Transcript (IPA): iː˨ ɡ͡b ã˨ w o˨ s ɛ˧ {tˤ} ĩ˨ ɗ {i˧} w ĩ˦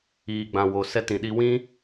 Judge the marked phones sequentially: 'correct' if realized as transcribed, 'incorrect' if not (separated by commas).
incorrect, correct